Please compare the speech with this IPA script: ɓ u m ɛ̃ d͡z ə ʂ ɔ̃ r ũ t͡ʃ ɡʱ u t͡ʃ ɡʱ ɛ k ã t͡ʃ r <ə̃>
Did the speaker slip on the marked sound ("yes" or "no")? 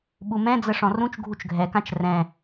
yes